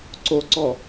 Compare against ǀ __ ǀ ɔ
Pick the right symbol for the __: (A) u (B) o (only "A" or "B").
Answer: B